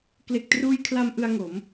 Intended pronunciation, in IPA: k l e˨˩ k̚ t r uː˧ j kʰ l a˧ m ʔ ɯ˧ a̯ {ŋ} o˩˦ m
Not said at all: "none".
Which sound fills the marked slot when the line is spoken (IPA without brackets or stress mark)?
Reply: ŋ